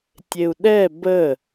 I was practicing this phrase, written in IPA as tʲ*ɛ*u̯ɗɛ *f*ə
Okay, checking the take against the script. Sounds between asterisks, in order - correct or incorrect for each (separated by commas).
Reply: incorrect, incorrect